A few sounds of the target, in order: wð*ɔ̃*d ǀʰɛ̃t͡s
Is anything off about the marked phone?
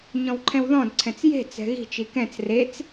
no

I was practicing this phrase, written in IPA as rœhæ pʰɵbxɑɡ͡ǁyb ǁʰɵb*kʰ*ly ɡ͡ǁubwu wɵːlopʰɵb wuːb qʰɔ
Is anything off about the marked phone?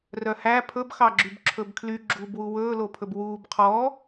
no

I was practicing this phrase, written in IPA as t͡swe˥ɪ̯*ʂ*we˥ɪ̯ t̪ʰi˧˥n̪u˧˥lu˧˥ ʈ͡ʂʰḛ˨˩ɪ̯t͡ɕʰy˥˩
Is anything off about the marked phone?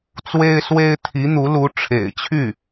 yes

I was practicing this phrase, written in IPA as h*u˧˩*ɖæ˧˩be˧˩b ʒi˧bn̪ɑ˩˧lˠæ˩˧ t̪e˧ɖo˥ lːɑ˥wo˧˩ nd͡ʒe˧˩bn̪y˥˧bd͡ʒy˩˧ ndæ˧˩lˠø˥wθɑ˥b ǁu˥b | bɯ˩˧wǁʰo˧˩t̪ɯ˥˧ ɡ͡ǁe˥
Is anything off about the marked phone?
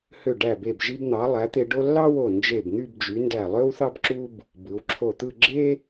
yes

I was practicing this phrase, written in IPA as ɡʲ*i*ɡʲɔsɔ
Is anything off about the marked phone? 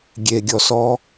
yes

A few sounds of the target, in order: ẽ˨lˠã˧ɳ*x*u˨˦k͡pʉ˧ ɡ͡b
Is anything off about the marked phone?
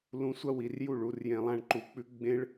yes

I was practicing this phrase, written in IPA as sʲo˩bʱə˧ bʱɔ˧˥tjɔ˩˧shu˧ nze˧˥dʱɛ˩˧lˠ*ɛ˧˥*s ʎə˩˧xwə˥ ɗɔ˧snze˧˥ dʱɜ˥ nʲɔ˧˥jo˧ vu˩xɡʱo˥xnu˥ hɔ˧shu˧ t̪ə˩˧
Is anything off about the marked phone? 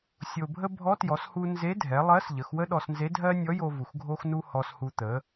yes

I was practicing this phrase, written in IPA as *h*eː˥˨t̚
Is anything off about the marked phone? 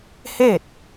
no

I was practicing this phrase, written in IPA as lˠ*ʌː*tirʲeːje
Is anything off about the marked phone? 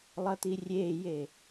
no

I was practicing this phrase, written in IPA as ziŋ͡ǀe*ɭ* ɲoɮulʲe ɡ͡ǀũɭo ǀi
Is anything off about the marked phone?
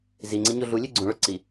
yes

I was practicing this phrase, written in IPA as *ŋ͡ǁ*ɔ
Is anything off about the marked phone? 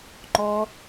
yes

